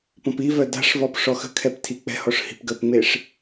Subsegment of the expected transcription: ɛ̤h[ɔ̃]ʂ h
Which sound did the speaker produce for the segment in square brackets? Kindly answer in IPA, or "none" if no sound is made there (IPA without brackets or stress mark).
ɔ